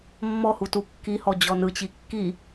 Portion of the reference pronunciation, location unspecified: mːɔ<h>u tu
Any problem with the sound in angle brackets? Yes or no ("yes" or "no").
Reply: no